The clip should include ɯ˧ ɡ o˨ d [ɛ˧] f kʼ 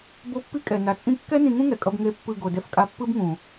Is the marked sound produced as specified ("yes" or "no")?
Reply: yes